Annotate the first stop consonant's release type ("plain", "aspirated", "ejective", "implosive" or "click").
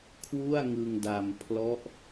aspirated